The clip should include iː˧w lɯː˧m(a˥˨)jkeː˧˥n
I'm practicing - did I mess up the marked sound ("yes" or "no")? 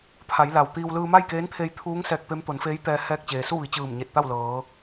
no